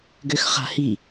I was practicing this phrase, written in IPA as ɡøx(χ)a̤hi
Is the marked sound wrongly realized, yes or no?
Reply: no